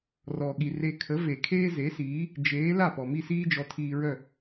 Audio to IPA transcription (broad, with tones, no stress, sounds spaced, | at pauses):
r ɔ˩ ɠ i˩ r e˧ kʰ ə˩˥ v e˩ kʰ eː˥ z e˩˥ s iː˩˥ | d͡ʒ eː˩˥ l a˥˩ p ɔ˩ m i˥˩ s iː˥ d͡ʒ ɔ˩˥ tʰ iː˧ ɹ œ˥˩